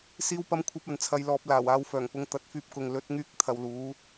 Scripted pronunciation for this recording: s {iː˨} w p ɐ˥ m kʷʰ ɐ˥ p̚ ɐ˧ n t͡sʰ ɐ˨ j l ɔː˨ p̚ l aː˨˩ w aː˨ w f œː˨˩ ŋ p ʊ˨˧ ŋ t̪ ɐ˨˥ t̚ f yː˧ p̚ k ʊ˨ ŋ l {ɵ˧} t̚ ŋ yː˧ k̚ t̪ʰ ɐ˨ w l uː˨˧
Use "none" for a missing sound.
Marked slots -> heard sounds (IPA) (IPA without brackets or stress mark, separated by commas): iː˥, ɵ˨˥